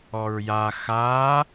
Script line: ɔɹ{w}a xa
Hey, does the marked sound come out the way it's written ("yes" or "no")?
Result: no